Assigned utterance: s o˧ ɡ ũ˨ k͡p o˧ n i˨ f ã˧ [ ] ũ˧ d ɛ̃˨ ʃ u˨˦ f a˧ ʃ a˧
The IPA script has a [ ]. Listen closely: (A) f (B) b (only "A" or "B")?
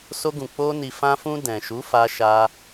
A